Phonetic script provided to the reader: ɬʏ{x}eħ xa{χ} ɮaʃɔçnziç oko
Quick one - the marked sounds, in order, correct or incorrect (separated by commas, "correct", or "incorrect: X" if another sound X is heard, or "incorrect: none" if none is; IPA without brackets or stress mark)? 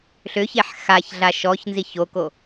incorrect: ç, incorrect: ç